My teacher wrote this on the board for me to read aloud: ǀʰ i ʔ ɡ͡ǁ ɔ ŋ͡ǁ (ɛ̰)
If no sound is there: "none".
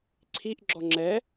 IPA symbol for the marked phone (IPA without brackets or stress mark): ɛ